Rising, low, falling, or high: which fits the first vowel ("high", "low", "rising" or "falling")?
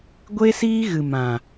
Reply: high